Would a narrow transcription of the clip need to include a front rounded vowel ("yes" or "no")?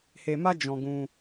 no